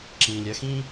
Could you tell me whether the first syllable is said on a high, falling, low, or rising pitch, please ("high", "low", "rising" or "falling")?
low